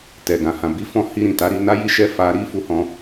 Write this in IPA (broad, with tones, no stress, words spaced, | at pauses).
tɛ˨ ɡã˨hã˨bi˨˦fɔ̃˧ hi˧ɾĩ˨ta˨˦ɾi˧ na˦ji˦ʃɛ˦ fa˧ ɾi˦fu˧hɔ̃˧